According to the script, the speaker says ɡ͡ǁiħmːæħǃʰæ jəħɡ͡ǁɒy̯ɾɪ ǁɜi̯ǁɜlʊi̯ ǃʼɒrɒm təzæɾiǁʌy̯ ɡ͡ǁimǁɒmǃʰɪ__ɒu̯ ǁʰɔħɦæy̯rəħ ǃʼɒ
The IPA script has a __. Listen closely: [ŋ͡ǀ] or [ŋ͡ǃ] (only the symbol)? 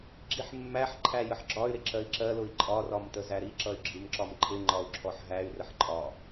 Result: ŋ͡ǃ